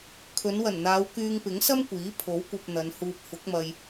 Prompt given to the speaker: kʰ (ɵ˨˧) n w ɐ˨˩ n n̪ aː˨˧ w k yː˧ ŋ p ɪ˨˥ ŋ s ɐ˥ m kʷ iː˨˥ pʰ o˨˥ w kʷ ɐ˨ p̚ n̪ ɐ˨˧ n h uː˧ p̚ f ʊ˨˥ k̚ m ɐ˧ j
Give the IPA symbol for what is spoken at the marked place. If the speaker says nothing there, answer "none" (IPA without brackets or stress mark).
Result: ɵ˨˧